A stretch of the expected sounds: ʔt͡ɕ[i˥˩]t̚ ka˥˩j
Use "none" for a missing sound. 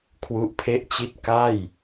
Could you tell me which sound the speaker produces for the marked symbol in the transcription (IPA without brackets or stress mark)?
i˥˩